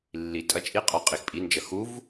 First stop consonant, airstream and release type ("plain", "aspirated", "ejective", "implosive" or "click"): ejective